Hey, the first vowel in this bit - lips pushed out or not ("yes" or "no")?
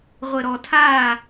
no